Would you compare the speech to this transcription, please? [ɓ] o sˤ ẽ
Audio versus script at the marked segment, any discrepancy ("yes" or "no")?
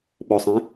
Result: no